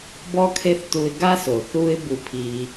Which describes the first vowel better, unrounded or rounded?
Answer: rounded